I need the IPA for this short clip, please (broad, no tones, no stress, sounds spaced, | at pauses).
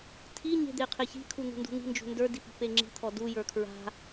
tʰ i ɲ e̤ d̪ e qʰ e ç i̤ kʰ u n̪ ṳ n d ṳ n̪ i̤ n d͡ʒ ṳ n d ə˞ d i p i̤ p e ŋ͡ǁ i̤ t̪ʰ ɔ d u j ə˞ kʰ ɹ a̤